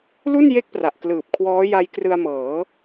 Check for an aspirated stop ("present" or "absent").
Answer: present